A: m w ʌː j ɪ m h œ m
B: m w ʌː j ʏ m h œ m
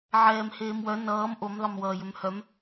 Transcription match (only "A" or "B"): B